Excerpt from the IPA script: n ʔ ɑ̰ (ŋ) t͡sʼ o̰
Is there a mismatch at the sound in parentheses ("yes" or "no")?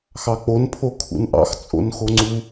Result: yes